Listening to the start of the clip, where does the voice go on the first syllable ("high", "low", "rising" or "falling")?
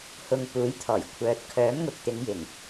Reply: low